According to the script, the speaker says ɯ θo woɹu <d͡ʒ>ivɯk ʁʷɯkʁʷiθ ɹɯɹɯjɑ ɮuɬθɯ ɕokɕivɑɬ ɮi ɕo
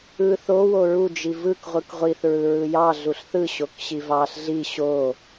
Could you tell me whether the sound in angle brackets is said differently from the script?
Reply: no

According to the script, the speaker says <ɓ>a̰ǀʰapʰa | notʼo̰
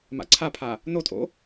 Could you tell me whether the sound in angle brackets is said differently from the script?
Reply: yes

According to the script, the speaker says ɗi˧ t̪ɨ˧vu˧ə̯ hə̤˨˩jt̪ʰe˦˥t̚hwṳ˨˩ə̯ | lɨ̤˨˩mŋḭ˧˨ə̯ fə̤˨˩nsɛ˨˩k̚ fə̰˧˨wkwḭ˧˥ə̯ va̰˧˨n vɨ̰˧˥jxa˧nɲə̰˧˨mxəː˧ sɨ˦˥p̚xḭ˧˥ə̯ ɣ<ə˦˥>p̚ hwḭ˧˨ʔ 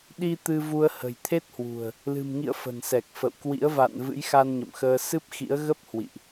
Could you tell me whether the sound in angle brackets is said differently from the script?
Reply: no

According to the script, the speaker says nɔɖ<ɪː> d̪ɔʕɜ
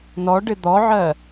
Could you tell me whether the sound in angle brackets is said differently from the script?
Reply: yes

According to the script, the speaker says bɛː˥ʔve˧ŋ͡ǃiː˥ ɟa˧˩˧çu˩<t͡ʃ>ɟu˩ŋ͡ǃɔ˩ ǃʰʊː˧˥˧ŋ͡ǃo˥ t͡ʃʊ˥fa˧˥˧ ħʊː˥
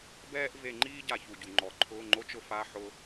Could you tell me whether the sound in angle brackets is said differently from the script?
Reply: yes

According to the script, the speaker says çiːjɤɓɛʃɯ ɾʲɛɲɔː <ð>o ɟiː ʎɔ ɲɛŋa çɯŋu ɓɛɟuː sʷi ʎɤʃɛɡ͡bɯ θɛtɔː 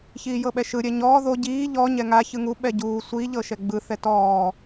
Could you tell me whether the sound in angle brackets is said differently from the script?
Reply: no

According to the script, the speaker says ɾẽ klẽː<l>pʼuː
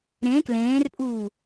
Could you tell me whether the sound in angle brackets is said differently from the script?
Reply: yes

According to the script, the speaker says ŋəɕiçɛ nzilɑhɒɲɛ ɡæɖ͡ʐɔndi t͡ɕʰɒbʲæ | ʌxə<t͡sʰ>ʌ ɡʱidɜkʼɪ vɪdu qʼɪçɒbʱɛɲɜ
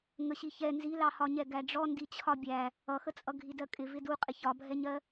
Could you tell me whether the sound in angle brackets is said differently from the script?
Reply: yes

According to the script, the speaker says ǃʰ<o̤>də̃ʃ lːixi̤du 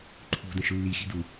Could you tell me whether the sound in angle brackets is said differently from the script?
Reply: yes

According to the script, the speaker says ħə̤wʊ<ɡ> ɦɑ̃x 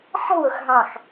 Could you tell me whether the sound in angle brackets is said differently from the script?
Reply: yes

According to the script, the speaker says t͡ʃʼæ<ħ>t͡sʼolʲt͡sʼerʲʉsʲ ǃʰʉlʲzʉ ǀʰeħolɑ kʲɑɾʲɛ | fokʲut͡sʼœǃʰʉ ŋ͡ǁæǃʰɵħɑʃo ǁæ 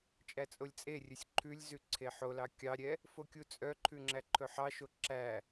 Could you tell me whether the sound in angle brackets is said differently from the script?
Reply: yes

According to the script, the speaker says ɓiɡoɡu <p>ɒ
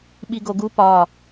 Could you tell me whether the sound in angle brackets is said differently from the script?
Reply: no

